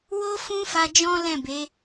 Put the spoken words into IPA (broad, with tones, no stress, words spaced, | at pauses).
wo˦fũ˦fa˧ d͡ʒɔ̃˦lɛ̃˦˨ be˨˦